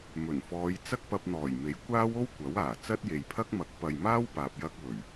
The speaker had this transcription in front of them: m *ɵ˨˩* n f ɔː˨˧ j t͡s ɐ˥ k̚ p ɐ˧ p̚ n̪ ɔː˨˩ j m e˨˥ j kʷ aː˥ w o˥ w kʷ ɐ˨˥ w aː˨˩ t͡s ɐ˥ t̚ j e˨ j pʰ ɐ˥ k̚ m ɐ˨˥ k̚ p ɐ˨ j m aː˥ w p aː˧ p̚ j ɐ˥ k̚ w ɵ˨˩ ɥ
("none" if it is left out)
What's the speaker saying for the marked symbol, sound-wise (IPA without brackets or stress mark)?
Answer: ɵ˨˩